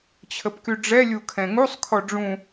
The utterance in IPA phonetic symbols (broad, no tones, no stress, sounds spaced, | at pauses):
t͡ɕʰ ə p k y ɖ͡ʐ ɛ lʲ u kʰ ɛ̃ ŋ u sˤ kʰ ɔ ɖ͡ʐ ũ